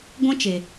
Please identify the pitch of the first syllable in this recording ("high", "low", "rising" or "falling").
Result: high